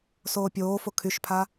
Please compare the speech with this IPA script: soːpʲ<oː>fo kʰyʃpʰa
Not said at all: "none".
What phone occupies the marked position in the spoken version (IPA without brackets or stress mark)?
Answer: oː